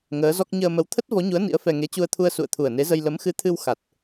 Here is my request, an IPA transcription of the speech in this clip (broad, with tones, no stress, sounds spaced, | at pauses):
ŋ əː˨˦ z ɔ˦˥ k̚ ɲ əː˧ m ə˨˦ w t̪ʰ ə˦˥ t̚ v ɔ˨˦ ɲ u˨˦ ə̯ n ḭ˧˥ ə̯ f ɛ˧ ŋ e˨˦ t͡ɕ u˧ ə̯ t̪ʰ u˧ ə̯ s ṵ˧˨ ə̯ t̪ʰ u˨˩ ə̯ n e˨˦ z ə˧ j l ə˨˦ m x ɨ˨˦ t̪ʰ ɨ˧ w x a˨˩ t̚